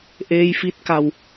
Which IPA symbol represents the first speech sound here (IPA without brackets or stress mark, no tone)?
ʔ